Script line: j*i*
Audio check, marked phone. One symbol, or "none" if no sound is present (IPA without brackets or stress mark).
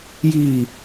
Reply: iː